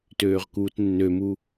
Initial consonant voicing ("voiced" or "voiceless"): voiceless